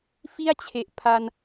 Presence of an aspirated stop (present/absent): present